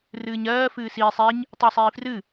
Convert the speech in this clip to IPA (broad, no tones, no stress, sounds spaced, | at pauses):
r ɨː ɲ ɜː f ɨː s iː sˤ i ɲ | tˤ ɨː sˤ iː f r ɨ